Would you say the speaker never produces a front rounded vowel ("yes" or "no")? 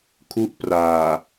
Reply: yes